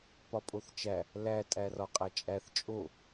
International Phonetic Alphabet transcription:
p ɒ pʼ o θ t͡ʃ æ | l æ tʼ æ r ɒ qʼ æ t͡ʃʼ æ θ t͡ʃʼ o

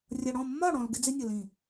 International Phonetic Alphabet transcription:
rʲ ʌ˨ ɽ ɔ̃˦˨ mː ɒ˦˨ ɽ ɔ̃˨ l ɡ ɪ˦ d͡z ɪ˦ nʲ ʌ˨ l ĩ˦˨

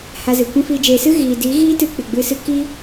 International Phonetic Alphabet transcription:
h a˧ z ɨ˨ kʷ ɛ̃˦ f iː˧ d͡ʒ eː˧ s ɨ˦ ɣ iː˨ d iː˨˦ ɣ iː˦ t ɨ˧ k͡p ɨ˨ ɡ͡b ɨ˧ s ɨ˦ k i˦

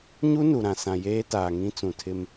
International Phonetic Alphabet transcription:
ɲ u˦ n u˨ ɾ ã˨ s ã˨ j eː˦ t aː˨ ŋ ĩ˦ t͡s ũ˨ tʰ ɪ˦ m

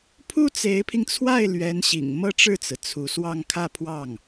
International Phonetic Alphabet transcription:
pʰ u˥ t͡s e˧˥ ɪ̯ pʰ i˧ ŋ t͡sʰ w a˥˩ ɪ̯ l ɥ ɛ˧˥ n ɕ ḭ˨˩ ŋ m ɤ˥ ʈ͡ʂ ɻ̩˥˩ t͡s ɹ̩˩ t͡sʰ u˧˥ s w ɑ˥˧ ŋ kʰ ä˥˧ pʰ w ɑ˥˩ ŋ

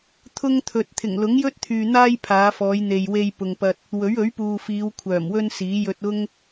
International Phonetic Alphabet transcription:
t̪ʰ ʊ˥ ŋ t̪ʰ ɵ˨ t̚ t̪ʰ ɪ˨˩ ŋ l ʊ˨˥ ŋ j ɵ˥ t̚ t̪ʰ yː˨ n̪ aː˥ j pʰ aː˨˧ f ɔː˨˧ j n̪ e˨ j w e˧ j p ʊ˨ ŋ p ɐ˧ t̚ | w ɵ˨˥ ɥ ɵ˨˥ ɥ p uː˨ f iː˨˧ w kʷʰ œː˨˩ m w ɵ˥ n s iː˨˥ j ɵ˧ t̚ ʊ˥ ŋ

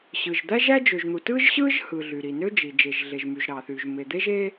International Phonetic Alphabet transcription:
ɕ ɯ˩ ʒ d̪ æ˥ ʒ æ˥ d͡ʒ ø˩ ʒ n̪ u˩ t ɯ˥ ʒ ɕ ɯ˥ ʒ h ɯ˩ ɮ y˩ ɾ i˩ n ø˥ d͡ʒ i˩ d͡ʒ e˩ ʒ ɮ e˩ ʒ m y˩ ʒ ɾ ɑ˩ θ y˩ ʒ m e˩ d̪ e˥ ʒ e˥

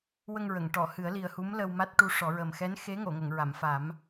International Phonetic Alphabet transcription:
w ə˧ ŋ ɹ ə˨˩˨ ŋ ʈ ɔ˨˩˨ h ɨ˨˩˦ ə̯ l i˨˩ ə̯ h u˧˥ m l ə˧ w m a˦˥ t̚ ʈ u˧˥ ʂ ɔ˨˩˦ ɹ ə˨˩ m x ɛ˧˥ n x e˧˥ ŋ o˨˩˨ ŋ ə˨˩˨ ŋ ɹ a˨˩˨ m f a˨˩˦ m

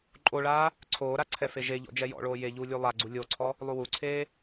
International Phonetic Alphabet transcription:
ǃʼ o ɭ aː | ǀʰ oː ɾ a ǀʰ ɛ f e ʒ e ʎ ɔ̰ d͡ʒ ɛ j ɔ̰ ɭ oː j e ʎ uː lʲ u lˠ a ɡ͡ǀ u lʲ o ǀʰ ɔ | lˠ u w u ǀʰ eː

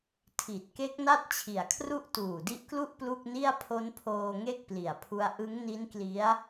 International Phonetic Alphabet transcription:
tʰ i˨˩ t̚ k e˦˥ k̚ n a˥˩ t̚ t͡ɕʰ i˨˩ a̯ kʰ r u˥˩ ʔ t uː˨˩ d i˦˥ ʔ k l u˥˩ ʔ p l u˥˩ k̚ n i˥˩ a̯ pʰ o˦˥ n pʰ oː˧ ŋ e˥˩ k̚ p l i˨˩ a̯ pʰ u˦˥ a̯ ʔ ɯ˦˥ ŋ n i˦˥ n k l i˦˥ a̯

